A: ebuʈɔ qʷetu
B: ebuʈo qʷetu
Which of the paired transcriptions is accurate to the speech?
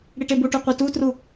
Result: B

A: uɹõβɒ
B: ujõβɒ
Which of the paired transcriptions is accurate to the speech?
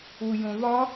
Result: B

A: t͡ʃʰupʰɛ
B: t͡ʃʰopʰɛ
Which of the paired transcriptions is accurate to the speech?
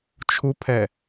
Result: A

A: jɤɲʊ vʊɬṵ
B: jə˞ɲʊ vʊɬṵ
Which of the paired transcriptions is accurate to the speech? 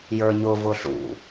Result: B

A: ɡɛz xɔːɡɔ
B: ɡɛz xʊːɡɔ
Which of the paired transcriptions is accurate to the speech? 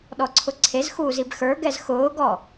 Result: B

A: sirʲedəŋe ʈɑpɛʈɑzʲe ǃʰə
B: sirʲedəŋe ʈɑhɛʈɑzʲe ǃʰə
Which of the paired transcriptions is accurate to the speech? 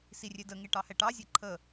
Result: B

